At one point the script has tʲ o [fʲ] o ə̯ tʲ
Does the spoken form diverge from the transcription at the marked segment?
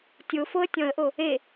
yes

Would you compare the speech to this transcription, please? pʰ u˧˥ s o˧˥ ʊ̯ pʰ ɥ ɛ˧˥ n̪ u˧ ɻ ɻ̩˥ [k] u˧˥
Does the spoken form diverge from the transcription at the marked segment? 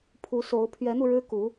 no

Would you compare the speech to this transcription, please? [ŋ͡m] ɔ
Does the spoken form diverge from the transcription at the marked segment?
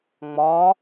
no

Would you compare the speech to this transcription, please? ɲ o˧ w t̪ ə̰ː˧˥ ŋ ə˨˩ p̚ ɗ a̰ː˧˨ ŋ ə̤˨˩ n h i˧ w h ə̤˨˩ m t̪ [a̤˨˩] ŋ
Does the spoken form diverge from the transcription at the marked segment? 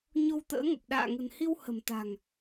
no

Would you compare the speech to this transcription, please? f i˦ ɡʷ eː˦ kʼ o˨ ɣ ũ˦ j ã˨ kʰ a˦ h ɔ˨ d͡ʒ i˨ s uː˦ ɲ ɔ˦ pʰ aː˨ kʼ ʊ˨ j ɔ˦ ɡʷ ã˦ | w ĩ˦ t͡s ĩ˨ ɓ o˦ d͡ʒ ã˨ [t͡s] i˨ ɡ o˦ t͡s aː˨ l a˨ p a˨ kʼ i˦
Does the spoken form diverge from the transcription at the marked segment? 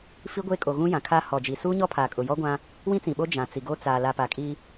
no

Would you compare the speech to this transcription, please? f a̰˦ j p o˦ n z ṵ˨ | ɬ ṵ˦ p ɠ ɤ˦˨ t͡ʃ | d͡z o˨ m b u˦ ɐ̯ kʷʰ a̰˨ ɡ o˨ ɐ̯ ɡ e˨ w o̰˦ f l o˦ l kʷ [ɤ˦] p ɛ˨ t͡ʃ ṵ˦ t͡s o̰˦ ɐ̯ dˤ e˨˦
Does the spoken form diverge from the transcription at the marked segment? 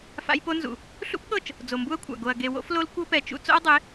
no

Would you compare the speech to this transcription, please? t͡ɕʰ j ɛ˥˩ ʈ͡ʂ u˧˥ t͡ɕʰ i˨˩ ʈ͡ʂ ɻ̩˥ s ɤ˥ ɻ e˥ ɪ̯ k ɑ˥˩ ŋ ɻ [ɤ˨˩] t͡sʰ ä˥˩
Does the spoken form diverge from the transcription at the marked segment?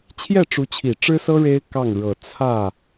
no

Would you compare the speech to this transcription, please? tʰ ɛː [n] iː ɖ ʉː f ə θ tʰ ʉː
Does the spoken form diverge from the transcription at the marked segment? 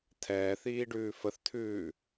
yes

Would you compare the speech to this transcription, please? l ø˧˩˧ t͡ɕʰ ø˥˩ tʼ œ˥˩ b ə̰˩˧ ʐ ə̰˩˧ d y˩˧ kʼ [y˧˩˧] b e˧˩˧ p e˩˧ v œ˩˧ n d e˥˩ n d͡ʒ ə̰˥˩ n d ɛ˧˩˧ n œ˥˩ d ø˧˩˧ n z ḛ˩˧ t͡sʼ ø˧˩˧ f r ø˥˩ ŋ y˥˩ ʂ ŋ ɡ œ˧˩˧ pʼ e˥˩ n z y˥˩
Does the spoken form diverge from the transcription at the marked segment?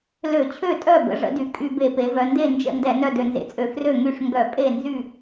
no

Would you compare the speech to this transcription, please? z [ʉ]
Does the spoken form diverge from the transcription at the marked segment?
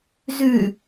no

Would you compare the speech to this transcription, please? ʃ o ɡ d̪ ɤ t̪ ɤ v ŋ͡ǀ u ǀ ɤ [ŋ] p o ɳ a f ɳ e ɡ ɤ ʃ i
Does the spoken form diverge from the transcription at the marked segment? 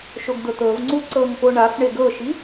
no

